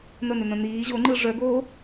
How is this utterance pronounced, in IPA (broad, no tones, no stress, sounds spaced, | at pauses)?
n̪ ə n̪ ʏ n̪ ə̃ n̪ iː ʑ o ŋ͡ǃ ɯ ʐ œ ɡ oː